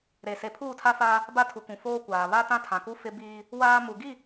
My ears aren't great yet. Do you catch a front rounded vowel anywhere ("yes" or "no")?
no